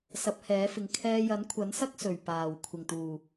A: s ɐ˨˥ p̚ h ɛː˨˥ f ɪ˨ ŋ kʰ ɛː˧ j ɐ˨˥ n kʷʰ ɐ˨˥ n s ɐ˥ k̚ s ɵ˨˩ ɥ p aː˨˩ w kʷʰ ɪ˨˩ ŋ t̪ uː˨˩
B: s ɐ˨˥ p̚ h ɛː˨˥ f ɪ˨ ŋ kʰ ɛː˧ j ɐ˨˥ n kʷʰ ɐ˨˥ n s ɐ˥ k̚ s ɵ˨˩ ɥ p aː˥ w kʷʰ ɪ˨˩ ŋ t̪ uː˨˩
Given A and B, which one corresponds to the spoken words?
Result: A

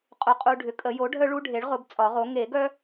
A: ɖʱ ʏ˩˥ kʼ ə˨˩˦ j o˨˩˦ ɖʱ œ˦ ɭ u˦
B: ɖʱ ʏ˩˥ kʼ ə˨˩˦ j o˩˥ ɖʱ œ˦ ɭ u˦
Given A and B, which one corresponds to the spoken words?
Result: B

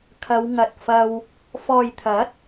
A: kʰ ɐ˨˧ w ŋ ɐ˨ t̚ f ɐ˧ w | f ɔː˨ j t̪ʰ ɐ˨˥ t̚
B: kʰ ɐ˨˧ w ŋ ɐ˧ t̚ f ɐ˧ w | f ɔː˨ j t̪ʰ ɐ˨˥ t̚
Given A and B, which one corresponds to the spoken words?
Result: A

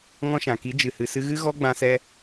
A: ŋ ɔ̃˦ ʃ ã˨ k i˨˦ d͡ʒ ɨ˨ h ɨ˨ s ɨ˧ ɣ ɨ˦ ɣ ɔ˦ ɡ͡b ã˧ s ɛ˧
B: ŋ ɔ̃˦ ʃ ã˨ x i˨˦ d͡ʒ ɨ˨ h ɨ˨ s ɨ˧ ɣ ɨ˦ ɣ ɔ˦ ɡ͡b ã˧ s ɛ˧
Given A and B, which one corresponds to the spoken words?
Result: A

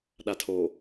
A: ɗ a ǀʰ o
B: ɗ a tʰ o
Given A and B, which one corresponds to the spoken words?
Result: B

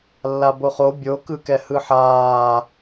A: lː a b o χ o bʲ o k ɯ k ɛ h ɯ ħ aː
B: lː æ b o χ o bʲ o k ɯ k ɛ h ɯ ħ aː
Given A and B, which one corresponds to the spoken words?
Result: A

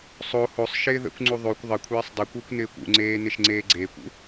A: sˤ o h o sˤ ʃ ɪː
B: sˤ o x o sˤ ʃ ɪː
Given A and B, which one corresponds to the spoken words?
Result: A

